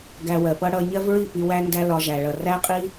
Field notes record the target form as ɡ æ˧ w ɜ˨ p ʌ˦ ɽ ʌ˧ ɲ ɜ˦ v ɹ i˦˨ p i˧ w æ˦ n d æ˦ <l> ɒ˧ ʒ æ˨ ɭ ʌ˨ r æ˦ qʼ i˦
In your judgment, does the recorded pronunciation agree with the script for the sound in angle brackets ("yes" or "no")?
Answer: yes